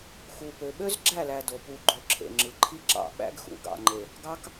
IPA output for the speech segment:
x u˨ p ø˨ ɓ ø˦ z ɡ͡ǁ æ˦˨ l æ˨ d o˨ p u˨ ɡ͡ǃ o˨ ǁʰ ḛ˨ ŋ͡ǁ ɯ˨ ǃʰ i˦ ǁ ɑ̰˨ ɓ æ̰˦ ɡ x ṵ˨ ɡ ɑ̰˨ ŋ͡ǃ e˨ | ɡ ɑ˦ k

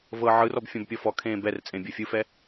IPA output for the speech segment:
v ɤ ʕ ɯ r ɔ b fʲ ɔ̃ b pʲ ɔ f ɔ kʰ ẽː b ɛ r t͡sʼ ẽ bʲ ɤ fʲ ɯ f ɛ

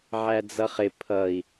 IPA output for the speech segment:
ʕ æ d͡z ʌ χ ɪ pʰ ʌ i̯

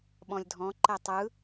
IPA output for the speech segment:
ɓ ɔ̃ lʲ dʱ ɔ̃ ǃ ɛ tˤ ɯ

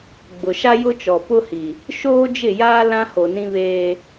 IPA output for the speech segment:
ɡ͡b ʊ˨ ʃ a˦ j ʊ˦ t͡ʃ ɔ˨ p ʊ˦ h i˨ | ʃ oː˦ d͡ʒ ɪ˦˨ j aː˦ l ã˦ h o˨ n ĩ˦ β eː˦

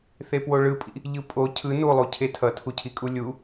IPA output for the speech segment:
θ e p w o ɭ ɯ pʼ ḭ | ʎ ɯ pʼ o cʰ ɯ n u lˠ u cʰ e tʰ ʌ tʰ u cʰ i kʼ u lʲ u

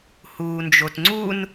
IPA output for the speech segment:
h uː n d͡ʒ o t ŋ͡ǀ u n

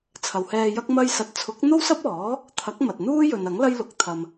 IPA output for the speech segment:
t͡sʰ ɐ˨ w h ɛː˧ j ɐ˥ k̚ m ɐ˥ j s ɐ˧ t̚ t͡sʰ ʊ˨˥ k̚ n̪ o˥ w s ɐ˥ p̚ ɔː˨˥ | t̪ʰ ɐ˨˥ k̚ m ɐ˨ t̚ n̪ uː˥ j ɵ˨ n ɐ˨˥ ŋ l ɐ˥ j l ʊ˨ k̚ t̪ʰ ɐ˧ m

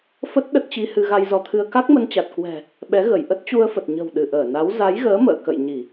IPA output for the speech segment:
f ə˦˥ t̚ ɗ ə˦˥ t̚ t͡ɕ i˧ h ɨ˧ ɣ a˧ j z ɔ˨˦ t̪ʰ ɨ˧ ə̯ k a˦˥ k̚ m ə˧ n t͡ɕ a˨˩ t̚ k w ɛ̤˨˩ | ɓ ɛ˨˦ ɣ ə˧˩ j ʔ ə˦˥ t̚ t͡ɕ u˧ ə̯ f ə˨˩ t̚ ɲ ə̤˨˩ w ɗ ɨ˧˩ ʔ əː˧˩ n a˨˦ w z a˨˦ j ɣ əː˨˦ m ə̰ː˧˨ k ə̰˧˨ j ɲ i˧˩˨

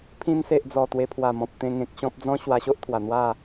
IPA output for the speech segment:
pʰ ĩ˧ n s e˨ ʔ d͡z ɔ˨˩ t̪ w e˧ pʰ w a˨˩ m ɔ̃˨ p̚ t̪ ẽ˧ ŋ ẽ˨ k̚ ɕ ɔ̃˦ p̚ d͡z ɔ̃˦ ɕ w a˧ ɕ o˦ ʔ t̪ʰ w a˨˩ n̪ w a˥˧

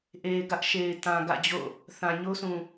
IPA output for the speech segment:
ʔ e˨ ɪ̯ ɡ ä˦ ʔ ʃ e˨ ɪ̯ t ã˨ ɡ ä̰˦˨ d͡ʑ o̰˦˨ | θ ã˨ ɲ o˦ sʰ ũ˨

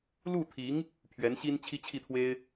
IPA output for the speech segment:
l u˥˩ t̪ʰ i˧˥ ŋ | pʰ ɥ ɛ˧˥ n ɕ i˥ n t͡ɕʰ i˥ t͡ɕʰ i˥˩ t̪ʰ w e˥ ɪ̯

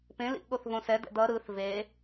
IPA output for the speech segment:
p ẽ l ḭ ʔ ɠ o θ v õ s ɛ d ɛ̰ d ʌ ɾ ɯ θ v e

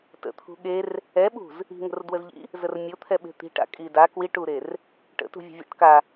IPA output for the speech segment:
t ə̰ t̪ʰ ṳ ɠ e r | ɛ ɓ ṳ z | i̤ ŋ ə̤ r d w ə z ʎ ḭ | z ə r mʲ o t̪ʰ ɛ ɓ e̤ t̪ i̤ ʈ a̰ kʼ i d a k w i ʈ u ɾ e r | ʈ ə̰ t ṳ vʲ ə̤ vʲ a̰ ʈ k a

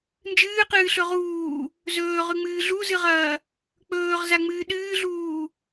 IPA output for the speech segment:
n d͡ʒ ɨː q ɨː ɬ ɵ ʁ uː | z ɵː ʁ ʉ ŋ͡m ɨː ɮ u z ɨ ʁ ɐː | k͡p ɵː ʁ z a ŋ͡m ɨː ɗ ɨː ɮ uː

